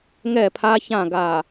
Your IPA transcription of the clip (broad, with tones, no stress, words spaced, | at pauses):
ŋɛ˦˨pʰa˦çã˦˨ ɡa˨